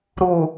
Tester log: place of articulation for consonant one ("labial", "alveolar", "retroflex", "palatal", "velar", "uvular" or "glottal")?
alveolar